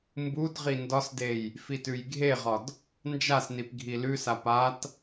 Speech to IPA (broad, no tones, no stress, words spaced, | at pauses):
mbudʁi ndɒsdej | fitʉjɡʱeʁɒd | nd͡ʒasnip ɡʱilʉsap at